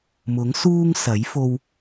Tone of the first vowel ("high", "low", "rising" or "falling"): rising